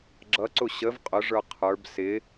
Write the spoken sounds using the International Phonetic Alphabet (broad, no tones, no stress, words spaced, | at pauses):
ɡ͡ǁʌǀʊ ɕəv qʼʊʐə˞ qʰə˞b sɪ